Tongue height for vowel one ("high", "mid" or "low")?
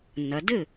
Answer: low